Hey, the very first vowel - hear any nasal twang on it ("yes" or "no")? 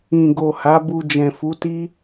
yes